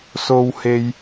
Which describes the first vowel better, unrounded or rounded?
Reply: rounded